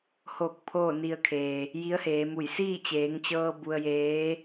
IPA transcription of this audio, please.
h o˧˩ k̚ pʰ oː˥˨ n i˧ ə̯ kʰ eː˩ | j i˧˥ ə̯ h eː˩˧ m u˧˩ j s iː˥˨ t͡ɕ eː˩˧ ŋ t͡ɕ ɤː˧ b u˧ ə̯ j eː˧˥

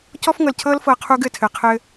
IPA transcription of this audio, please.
c ɔ˦ f ŋ ɤ˨ l cʰ ɤ˦ l f ɤ˨ qʰ u˦ ɡ ɘ˨ tʰ ɘ˨ qʰ ɘ˦

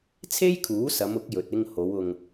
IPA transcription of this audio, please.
t͡sʰ e˥ j kʰ uː˨˥ s ɐ˨˧ m ʊ˨˥ k̚ j ɵ˨ t̚ ɪ˧ ŋ h o˨˧ w ʊ˧ ŋ

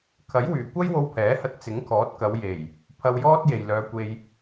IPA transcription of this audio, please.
kʰ ɐ˨˥ j w yː˨˩ kʷ ɐ˥ j w o˧ w pʰ ɛː˨˥ h ɐ˧ t̚ t͡s ɪ˨˥ ŋ kʰ ɔː˨˥ t̚ k ɐ˨˧ w j e˨˩ j | pʰ ɐ˧ w j ɔː˥ t̚ j e˨ j l œː˨˧ kʷ e˧ j

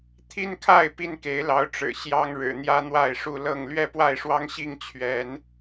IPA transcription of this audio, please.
t̪ʰ i˦ n kʰ a˥˨ ɪ̯ p i˦ n k e˨˦ ɪ̯ l ɑ˨˦ ʊ̯ ʈ͡ʂ ɻ̩˨˩ ɕ j ɑ˦ ŋ ɻ ɻ̩˨˩ n̪ j ä˦ n̪ w a˥˨ ɪ̯ ʂ u˥˨ l ɤ˥˨ ŋ l ɥ ɛ˥˨ p w a˥˨ ɪ̯ ʂ w ɑ˦ ŋ ɕ i˥˨ ŋ t͡ɕʰ ɥ ɛ˨˦ n

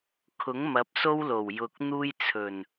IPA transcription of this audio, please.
kʰ ʊ˨˥ ŋ m ɐ˨˥ p̚ s o˥ w l o˨˩ w j ʊ˨ k̚ n̪ uː˥ j t͡sʰ ɵ˨˩ n

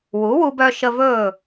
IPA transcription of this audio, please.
w u˩˥ w u˧ b œ˧ ʃ ə˧ v ɵː˥˩

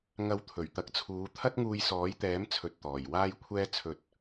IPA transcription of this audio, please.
ŋ ɐ˧ w t̪ʰ ɵ˨˩ ɥ t̪ ɐ˨˥ k̚ t͡sʰ uː˨˧ t̪ʰ ɐ˥ t̚ ŋ uː˧ j s ɔː˨˥ j t̪ ɛː˨˥ m t͡sʰ ɵ˨ t̚ t̪ ɔː˨˩ j w aː˥ j kʷʰ ɛː˥ t͡sʰ ɵ˧ t̚

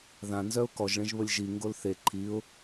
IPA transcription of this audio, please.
ð ã n z œ ʊ̯ k ɔ ʒ ɭ ẽ ʒ β ə lʲ ʒ i ŋ ɡ o l θ e ǃʰ i ʊ̯

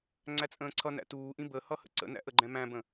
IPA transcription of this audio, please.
ŋ͡ǀ æ t͡sʼ ə̃ː ǀʰ ʌ n æ̰ t uː ʔ ĩ b ə h ʌ h ə̰ ǀ ə̰ n æ̰ ʔ ə ɡ͡ǃ ɛ̃ m æ̃ b ə̃

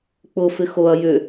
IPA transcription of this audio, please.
k͡p ʊ f ɪ x o ɐ̯ j ʏ

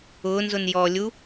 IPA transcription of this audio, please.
ʊː n z ʊ n j ɔ lʲ u

